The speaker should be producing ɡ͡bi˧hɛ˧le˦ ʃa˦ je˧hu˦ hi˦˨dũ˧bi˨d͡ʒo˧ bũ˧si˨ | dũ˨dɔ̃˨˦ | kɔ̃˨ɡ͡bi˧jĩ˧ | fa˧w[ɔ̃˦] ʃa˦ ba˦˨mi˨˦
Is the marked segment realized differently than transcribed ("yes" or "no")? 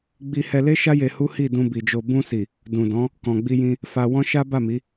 no